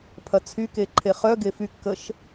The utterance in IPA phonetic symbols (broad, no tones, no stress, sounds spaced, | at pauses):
pʰ ɐ t͡sʰ y k e ǃʰ e χ œ ɡ e f y kː ə ʃ